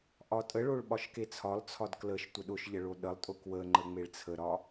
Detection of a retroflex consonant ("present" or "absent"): present